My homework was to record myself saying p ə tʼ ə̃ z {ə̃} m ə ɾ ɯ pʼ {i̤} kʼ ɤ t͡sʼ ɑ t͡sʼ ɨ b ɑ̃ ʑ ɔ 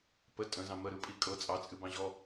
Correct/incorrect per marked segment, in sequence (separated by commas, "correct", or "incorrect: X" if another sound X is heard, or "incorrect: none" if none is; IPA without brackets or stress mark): incorrect: ɑ̃, incorrect: i